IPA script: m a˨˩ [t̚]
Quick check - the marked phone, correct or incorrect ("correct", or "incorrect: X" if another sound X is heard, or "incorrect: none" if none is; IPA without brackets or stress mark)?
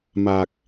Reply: incorrect: k̚